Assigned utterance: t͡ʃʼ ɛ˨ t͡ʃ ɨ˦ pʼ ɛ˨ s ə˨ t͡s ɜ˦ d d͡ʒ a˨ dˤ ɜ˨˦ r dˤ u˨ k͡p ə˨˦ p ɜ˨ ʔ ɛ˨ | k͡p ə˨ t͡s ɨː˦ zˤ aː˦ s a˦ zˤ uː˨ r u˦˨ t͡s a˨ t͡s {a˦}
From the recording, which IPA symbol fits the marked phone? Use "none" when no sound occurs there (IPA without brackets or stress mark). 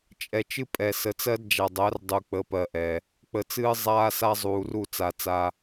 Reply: a˦